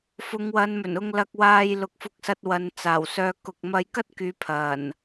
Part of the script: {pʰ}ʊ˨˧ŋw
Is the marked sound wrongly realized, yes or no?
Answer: yes